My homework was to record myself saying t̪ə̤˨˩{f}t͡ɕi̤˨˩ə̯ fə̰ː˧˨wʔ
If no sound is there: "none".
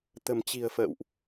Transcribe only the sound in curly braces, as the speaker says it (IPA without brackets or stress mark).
m